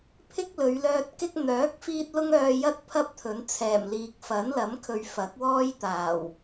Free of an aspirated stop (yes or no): no